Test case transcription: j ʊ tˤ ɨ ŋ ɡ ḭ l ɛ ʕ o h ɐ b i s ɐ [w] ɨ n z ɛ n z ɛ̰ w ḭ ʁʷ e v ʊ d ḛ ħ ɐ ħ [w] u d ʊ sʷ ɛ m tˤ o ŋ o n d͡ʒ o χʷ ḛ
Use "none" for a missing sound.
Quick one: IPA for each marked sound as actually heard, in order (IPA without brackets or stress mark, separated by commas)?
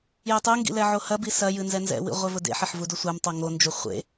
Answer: j, v